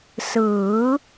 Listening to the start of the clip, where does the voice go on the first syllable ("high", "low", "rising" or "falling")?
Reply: rising